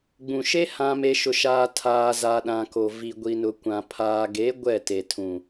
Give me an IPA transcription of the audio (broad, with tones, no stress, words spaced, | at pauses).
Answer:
ɡ͡bũ˨ʃe˦ hã˨me˨ ʃʊ˨ʃaː˨ tʰaː˨ za˨ɗã˨ko˨ vi˨ɡʷi˨nʊ˨kʷã˨ pʰaː˨ɡe˨˦ ɡʷɛ˦˨te˨tʰũ˨